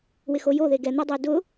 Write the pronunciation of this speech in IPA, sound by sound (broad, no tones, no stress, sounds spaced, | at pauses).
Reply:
w ɪ x o j o ð e ɡ ɛ n̪ o dˤ e d ʊ